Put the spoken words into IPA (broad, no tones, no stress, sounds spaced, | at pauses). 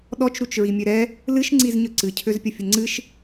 ɗ ɔ t͡ʃ ɾ u t͡ʃ ɹ i mʲ ø ɾ ɛ | l ɨ ʃ ŋ͡ǀ i z ɲ œ ǀ ɨ cʰ ø z pʲ ə fʲ ə ŋ͡ǀ ɨ ʃ